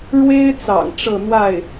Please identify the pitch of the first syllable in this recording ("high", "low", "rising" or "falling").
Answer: high